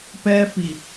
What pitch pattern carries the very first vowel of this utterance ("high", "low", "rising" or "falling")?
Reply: high